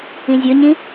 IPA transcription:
ĩ zʲ ɵ ɲ ĩ

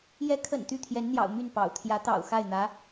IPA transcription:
j ɛ˧˥ kʰ ə̰˨˩ n t̪ y˥˩ t̪ʰ j ɛ˧˥ n n̪ j ɑ̰˨˩ ʊ̯ m y˥˩ n p ɑ̰˨˩ ʊ̯ t̪ʰ j ä˧˥ t̪ ɑ̰˨˩ ʊ̯ x a˥˩ ɪ̯ n̪ ä˧˥

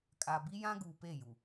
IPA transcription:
kʼ a˨ b i˦ j ã˦ ɡ uː˨ p e˦˨ j u˨

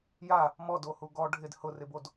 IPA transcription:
j a | m ɔ d o h u ɡ ɔ ɖʱ ɪ d h ʊ r ɪ b o d

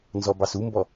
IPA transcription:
n z ɔ b ɑ s u m b ɔ

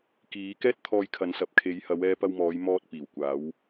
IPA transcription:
k iː˨˧ k ɛː˥ t̚ t̪ʰ ɔː˧ j kʰ ɐ˨˧ n s ɐ˨ p̚ kʰ e˨˧ j h ɐ˨˧ w ɛː˧ p ɐ˧ w m ɔː˨˧ j m ɔː˧ t̚ p iː˨˩ w kʷ aː˨˧ w

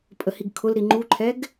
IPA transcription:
pʼ ə h i ɡ kʰ ʊ l ɾ i ŋ͡ǃ u ǃʰ ɛ ɡ

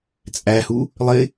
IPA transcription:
t͡sʼ æ h u | lˠ ɪ

